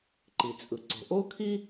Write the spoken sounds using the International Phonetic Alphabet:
ǃ i˩ t͡sʼ ɯ˩ ǀ o̤˩ ʔ o˥ kʰ i˥

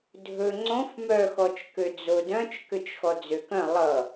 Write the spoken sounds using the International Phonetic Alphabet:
dʱ ɵ ŋ͡ǀ õ f m œ x ɔ t͡ʃ k ø d͡z o d œ̃ t͡ʃ k ø t͡ʃ x ɔ d͡z ø k œ̃ lˠ ʌ

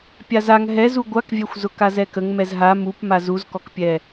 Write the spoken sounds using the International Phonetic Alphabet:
pʲ a z a ŋ ɦ ɛ z u ɡʷ a k vʲ ɛ xʷ z ʊ k a z ɛ k ə ŋ m ɛ z ɦ a m u p m a z u z k ɔ k pʲ ɛ

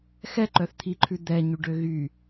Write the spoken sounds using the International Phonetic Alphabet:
x ɛ ǃ œ θ t̪ʰ i ǃʰ ʉ d̪ ɛ ɲ y ɖ ø ɣ y

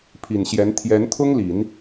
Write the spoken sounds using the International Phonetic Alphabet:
pʰ i˨˩ n ɕ j ɛ˧˥ n t̪ʰ j ɛ˧˥ n t̪ʰ ʊ˥ ŋ l i˨˩˦ n

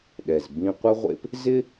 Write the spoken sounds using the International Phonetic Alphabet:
ɗ ɛ˩ z b ĩ˧ qʷ ə˥ ʁʷ ḛ˥ p | z ɪ˥

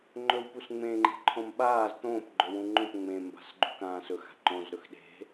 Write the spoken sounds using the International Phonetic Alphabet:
ŋ͡ǃ ɵ w p u s ŋ͡m ẽ ŋ͡ǃ e̤ ǃʰ õ m ɓ aː z t̪ õː p ɡ͡ǃ ɵ w ũ ŋ͡ǃ õ p ŋ͡m ẽ m b a̤ s ɡ͡ǃ ṳ k ãː s ɵ x a̤ ǃ õ z ɾ ɵ x ɗ e̤

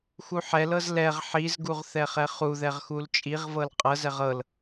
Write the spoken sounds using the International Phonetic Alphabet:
x u ħ ɛ l ɤ z l ɛ ʁ ħ i z ɡ u ʁ θ ɛ χ ɛ χ u ð ɛ ʁ x u l t͡ʃʼ i ʁ v ɤ l qʼ ɤ z ɛ ʁ ɤ l

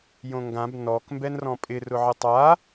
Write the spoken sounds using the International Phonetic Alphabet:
j õ ŋ ɡ ã b n ɔ k m b ɛ n r ɔ̃ pʼ ɪ r ʊ ʕ ɪ tˤ a

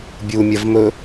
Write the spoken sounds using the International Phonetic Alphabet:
bʲ u mʲ ɐ v m ɵ

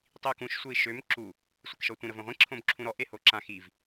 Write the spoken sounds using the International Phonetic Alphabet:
tˤ i u̯ k ũ ʃ sʷ e i̯ ʃ ø m ǁ u | sʷ e k ʃ ɔ tʷ ĩ ɾ ə v õ ʁʷ ĩ ǁʰ õ b ǁʰ ũ ɾ ɔ ʔ e h o ǁ ã x i v

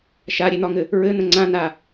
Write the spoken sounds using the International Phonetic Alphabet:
ʃ a ɾʲ e n̪ ɒ ŋ ɘ | ɹ ɘ n̪ ə̃ ŋ͡ǀ ã n a

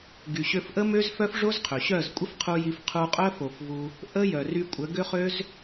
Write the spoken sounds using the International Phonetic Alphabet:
ɡ y˨ ɕ ø˧ f ʔ ə˦ m ø˦ z f œ˦ f ʐ o˦ z qʰ ø˨ ɕ œ˦˨ z kʷʼ ə˦ f qʰ u˧ j i˧ f qʰ u˧ qʼ œ˦ f o˨ f v u˧ | ʔ ə˦ j œ˨ r y˧ kʷʼ ə˨˦ ɡ ø˦ χ ø˦ z

